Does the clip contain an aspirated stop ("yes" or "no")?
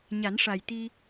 no